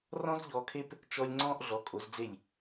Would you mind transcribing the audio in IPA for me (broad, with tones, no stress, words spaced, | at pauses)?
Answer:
rɔ̃˥zʎɔː˧kʰe˥p | t͡ʃɔ˧lʲ ŋ͡ǀɔ̃ː˥ʔɮɔ˩˥kʼo˩˥zd͡ze˥˩lʲ